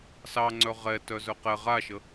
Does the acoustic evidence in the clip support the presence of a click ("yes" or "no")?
yes